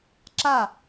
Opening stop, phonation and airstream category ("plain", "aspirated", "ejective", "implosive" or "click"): click